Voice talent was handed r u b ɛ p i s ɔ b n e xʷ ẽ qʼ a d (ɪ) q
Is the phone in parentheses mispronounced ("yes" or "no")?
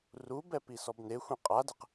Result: no